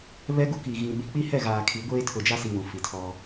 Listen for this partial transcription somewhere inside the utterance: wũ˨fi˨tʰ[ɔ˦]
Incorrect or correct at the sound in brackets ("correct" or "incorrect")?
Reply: correct